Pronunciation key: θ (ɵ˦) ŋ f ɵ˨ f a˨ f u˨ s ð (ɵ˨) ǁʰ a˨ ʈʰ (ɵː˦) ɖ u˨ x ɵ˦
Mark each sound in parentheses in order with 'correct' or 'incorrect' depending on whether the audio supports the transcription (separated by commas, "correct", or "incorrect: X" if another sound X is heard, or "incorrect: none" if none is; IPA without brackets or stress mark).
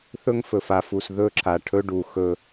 correct, incorrect: ɵ˦, incorrect: ɵ˦